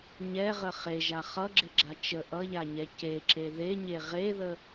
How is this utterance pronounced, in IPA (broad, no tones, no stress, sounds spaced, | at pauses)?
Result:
ɲ ɛ ʁ ə χ e ʒ a χ ʌ ɡ͡ǁ ɪ ɡ͡ǁ a t͡ʃ ə ʔ ʌ ʎ a ɲ ɛ c e ǁ e ð e ɲ e ʁ e ð ə